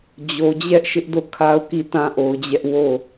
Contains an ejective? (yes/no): no